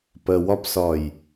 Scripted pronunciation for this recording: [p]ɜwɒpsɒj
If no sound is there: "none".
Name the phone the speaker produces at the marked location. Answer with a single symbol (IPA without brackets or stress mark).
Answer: p